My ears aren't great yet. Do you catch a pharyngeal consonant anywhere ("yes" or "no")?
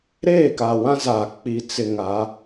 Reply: no